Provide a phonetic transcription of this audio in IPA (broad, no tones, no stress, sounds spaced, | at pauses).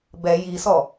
b ɛ j i s ɔ